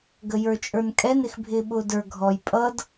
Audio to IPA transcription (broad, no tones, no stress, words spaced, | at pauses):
ɡəjə˞t͡ʃʼə˞nkʼɛn ɪxbʱɪːɓʊːdə˞ ɡʱɔj pʼʌd